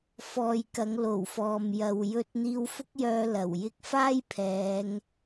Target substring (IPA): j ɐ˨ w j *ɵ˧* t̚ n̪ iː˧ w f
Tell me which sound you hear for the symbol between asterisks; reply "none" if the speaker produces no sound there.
ɵ˧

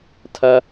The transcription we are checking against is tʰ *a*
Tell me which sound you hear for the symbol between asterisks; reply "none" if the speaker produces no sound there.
ɐ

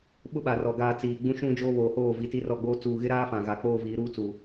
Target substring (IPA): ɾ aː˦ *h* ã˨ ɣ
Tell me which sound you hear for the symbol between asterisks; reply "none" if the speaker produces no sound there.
f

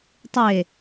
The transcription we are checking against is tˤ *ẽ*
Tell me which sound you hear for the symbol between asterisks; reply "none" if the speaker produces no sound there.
e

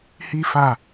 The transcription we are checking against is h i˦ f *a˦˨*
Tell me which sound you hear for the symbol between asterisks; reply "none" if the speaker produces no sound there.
a˦˨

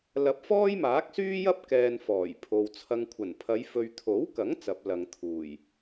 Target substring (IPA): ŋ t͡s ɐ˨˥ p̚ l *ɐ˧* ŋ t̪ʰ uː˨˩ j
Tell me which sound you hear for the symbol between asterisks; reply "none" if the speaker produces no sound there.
ɐ˨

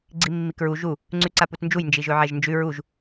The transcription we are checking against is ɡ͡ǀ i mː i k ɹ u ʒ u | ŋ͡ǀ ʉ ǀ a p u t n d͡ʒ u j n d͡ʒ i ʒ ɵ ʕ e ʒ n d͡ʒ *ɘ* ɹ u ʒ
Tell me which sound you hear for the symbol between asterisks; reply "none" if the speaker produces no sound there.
ʉ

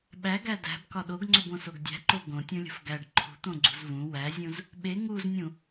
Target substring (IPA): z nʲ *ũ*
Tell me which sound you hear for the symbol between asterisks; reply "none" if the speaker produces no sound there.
ũ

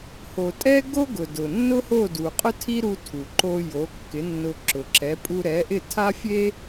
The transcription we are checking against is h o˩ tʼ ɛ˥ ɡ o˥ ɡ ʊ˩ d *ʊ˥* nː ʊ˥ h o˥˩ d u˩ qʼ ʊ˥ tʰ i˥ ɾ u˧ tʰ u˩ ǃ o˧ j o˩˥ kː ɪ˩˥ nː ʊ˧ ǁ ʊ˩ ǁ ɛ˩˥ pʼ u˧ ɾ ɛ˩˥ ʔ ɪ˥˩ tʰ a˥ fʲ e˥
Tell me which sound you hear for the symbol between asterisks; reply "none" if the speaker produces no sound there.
ʊ˩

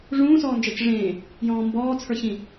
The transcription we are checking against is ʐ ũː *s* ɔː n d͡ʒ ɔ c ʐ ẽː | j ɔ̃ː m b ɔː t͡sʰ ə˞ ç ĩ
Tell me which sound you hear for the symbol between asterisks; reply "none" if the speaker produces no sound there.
s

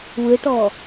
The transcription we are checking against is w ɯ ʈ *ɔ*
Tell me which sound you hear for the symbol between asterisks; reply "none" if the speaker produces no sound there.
ɔ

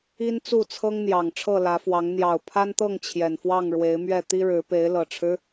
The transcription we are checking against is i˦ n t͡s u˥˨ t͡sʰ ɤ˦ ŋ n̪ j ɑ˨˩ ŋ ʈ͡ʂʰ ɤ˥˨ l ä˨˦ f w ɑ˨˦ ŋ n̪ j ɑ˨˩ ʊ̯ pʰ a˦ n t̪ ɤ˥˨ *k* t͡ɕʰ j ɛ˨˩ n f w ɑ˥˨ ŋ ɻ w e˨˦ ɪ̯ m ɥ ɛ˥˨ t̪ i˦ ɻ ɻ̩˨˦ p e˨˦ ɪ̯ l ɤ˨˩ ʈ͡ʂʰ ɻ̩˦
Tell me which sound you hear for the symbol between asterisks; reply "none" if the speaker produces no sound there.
ŋ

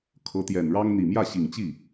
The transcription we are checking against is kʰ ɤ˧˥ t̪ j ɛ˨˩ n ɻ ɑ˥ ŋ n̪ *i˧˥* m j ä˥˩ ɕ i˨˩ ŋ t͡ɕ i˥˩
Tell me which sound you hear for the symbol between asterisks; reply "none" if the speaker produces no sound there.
i˨˩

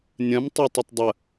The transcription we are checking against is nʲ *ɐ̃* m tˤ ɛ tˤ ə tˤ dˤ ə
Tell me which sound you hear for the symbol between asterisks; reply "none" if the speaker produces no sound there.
ɐ̃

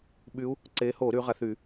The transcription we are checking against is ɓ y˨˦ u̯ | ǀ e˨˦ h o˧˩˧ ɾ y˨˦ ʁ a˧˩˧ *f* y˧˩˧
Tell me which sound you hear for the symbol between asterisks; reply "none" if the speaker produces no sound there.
θ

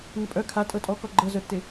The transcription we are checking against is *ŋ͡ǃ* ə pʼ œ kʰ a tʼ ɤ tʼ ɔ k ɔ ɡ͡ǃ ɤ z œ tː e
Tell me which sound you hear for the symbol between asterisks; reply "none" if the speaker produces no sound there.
ŋ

